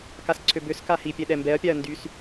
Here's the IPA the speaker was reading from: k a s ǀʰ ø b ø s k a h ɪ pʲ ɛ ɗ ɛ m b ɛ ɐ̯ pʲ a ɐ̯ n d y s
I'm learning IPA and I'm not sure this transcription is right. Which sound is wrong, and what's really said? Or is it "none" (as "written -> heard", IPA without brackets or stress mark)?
ɪ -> i